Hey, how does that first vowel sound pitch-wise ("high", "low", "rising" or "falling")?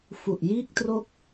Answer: low